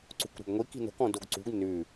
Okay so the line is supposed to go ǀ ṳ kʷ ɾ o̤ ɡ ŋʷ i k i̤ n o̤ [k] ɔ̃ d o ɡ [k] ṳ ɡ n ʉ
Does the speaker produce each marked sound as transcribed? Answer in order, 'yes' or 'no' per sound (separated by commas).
yes, no